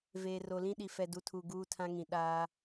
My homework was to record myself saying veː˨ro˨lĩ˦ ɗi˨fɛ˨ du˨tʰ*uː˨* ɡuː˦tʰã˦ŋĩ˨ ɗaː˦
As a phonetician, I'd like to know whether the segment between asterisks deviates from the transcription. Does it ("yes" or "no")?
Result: yes